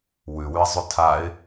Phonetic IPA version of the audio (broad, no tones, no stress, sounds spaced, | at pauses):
w ʉ w ʉ ɪ̯ zˤ ʉ tʰ a ɪ̯